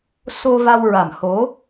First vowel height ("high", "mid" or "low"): mid